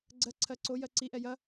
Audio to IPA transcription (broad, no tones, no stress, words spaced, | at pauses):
ɡ͡ǀɜǀʰɜ ǀojɜ ǀiʔɛ jɐ